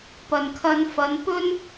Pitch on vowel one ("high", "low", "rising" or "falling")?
low